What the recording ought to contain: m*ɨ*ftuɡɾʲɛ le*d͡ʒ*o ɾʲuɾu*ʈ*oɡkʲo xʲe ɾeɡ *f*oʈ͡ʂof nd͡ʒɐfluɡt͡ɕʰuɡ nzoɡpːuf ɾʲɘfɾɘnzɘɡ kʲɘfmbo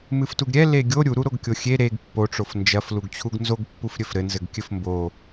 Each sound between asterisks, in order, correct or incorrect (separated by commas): correct, incorrect, incorrect, incorrect